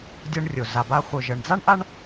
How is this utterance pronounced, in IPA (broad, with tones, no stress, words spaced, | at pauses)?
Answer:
dʲɤ˧ɳrʲo˩ za˩ba˧ χʷœ˩ʒɤ˩ɳd͡za˥ɳ ʔa˥ɳ